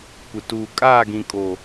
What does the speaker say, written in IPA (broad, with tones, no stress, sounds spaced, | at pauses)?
kʷ ɪ˨ t uː˨ kʼ aː˦˨ ɡ ĩ˨ kʼ o˨